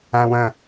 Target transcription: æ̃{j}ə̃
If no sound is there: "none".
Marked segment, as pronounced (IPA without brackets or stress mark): w